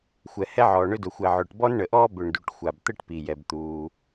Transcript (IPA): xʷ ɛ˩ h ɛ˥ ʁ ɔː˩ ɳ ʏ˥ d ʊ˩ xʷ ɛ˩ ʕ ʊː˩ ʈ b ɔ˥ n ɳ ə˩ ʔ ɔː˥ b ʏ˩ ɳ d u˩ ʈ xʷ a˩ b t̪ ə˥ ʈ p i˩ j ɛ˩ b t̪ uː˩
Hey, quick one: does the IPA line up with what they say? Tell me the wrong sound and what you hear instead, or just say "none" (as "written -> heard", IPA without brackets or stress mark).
ʁ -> ʕ